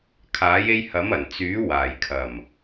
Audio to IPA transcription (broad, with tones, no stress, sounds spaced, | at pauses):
kʰ aː˨˥ j e˧ j h ɐ˨˥ m ɐ˨˩ n t͡s yː˨˥ w aː˨˩ j kʰ ɐ˨˩ m